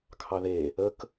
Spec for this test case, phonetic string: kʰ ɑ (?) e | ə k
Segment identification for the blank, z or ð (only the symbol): ð